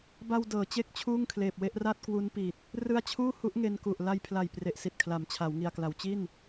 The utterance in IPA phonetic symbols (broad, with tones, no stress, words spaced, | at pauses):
ba˧wdɤː˩˦ t͡ɕe˥˩k̚t͡ɕʰuː˥˩ŋkʰleː˨˩p̚we˦˥ʔ ra˥˩t̚kwu˦˥npi˨˩t̚ | rɯ˧a̯t͡ɕʰuː˥˩ hu˦˥ʔŋe˧nku˨˩ʔ la˧jpʰla˨˩j pre˨˩ʔsi˨˩t̚kʰla˩˦mt͡ɕʰa˩˦w ŋi˨˩a̯kla˨˩w t͡ɕi˥˩n